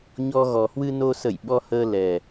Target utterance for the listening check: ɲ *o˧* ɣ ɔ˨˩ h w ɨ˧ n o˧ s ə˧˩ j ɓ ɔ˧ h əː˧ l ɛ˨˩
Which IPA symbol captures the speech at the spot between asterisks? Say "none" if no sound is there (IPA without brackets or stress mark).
ɔ˧